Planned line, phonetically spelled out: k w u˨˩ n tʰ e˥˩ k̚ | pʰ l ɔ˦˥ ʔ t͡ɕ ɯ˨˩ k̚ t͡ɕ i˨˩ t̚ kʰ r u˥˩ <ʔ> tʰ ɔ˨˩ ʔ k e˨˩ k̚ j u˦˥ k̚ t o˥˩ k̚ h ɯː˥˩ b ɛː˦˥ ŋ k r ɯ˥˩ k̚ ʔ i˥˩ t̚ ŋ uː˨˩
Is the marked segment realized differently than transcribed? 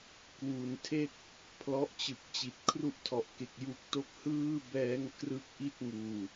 no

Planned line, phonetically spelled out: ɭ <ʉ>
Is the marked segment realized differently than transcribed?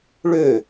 yes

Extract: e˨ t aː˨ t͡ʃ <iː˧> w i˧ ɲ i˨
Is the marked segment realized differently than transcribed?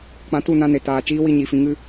yes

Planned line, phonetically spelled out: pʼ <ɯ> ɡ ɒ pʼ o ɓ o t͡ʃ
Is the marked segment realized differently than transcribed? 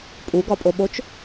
yes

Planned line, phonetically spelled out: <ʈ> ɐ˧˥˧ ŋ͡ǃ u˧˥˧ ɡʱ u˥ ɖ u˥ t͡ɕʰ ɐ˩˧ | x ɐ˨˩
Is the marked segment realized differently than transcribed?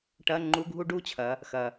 no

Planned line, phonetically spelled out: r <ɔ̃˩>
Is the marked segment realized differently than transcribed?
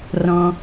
no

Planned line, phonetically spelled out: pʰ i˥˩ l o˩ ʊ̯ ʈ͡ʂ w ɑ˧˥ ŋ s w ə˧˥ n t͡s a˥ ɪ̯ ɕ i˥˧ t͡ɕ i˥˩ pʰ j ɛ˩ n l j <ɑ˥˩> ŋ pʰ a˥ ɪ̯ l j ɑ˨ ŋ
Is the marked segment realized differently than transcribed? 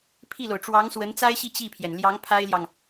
yes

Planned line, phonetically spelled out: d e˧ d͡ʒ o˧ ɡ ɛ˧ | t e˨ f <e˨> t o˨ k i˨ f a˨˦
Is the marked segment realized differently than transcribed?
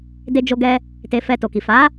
yes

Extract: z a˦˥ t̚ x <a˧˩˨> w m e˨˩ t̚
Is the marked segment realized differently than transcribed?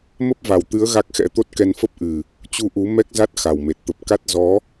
yes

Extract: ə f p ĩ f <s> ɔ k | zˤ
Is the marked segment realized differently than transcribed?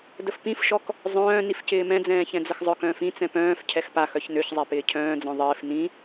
yes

